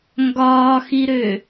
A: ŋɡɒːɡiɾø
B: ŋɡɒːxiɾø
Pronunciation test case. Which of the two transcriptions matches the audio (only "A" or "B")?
B